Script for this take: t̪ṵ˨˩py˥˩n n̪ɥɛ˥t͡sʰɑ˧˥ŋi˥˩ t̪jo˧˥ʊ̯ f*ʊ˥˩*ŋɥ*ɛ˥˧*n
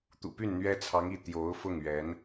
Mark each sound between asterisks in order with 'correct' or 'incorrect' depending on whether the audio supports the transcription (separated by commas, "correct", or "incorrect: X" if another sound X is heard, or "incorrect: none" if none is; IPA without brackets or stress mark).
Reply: correct, incorrect: ɛ˧˥